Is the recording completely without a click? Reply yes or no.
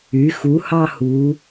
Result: yes